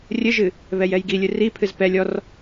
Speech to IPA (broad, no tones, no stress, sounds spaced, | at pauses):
rʲ ɘ ʒ ɨ | β ɛ j ɛ j ɡ i lʲ ɨ r i pʰ ɨ z p ɛ lʲ ɔ r